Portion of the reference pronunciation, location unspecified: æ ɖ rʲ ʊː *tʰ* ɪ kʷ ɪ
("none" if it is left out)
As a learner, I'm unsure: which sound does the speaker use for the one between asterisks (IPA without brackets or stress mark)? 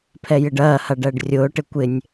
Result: ʈ